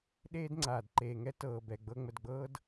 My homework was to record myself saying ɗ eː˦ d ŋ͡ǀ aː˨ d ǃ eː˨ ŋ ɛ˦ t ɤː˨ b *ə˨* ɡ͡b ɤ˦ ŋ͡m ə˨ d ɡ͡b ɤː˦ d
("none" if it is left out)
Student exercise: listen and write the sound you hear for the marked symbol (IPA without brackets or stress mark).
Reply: ɛ˨